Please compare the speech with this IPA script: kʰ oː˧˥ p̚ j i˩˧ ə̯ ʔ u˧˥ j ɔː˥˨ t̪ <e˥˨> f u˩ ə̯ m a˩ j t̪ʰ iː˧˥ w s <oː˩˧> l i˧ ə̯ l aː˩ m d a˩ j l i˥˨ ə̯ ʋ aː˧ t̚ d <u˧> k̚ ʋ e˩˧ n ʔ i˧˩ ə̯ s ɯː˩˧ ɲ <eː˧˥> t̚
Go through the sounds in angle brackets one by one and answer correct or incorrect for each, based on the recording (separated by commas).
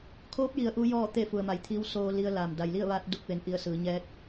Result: correct, incorrect, correct, incorrect